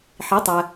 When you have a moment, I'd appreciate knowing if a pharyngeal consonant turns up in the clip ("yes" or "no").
yes